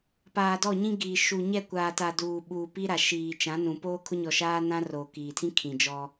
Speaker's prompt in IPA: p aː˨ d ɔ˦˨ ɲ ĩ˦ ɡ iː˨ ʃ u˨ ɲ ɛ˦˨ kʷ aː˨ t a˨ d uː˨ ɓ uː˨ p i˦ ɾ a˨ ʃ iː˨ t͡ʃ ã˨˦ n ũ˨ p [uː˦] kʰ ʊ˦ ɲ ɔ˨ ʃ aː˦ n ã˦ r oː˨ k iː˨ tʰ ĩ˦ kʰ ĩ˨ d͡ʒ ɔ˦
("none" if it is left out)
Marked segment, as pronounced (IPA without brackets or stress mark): oː˦